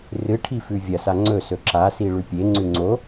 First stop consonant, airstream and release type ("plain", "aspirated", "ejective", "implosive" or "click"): aspirated